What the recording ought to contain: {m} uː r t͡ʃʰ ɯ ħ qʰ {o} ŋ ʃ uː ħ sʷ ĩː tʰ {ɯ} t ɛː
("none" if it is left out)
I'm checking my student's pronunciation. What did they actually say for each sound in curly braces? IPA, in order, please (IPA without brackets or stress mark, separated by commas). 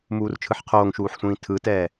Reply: m, oː, ɯ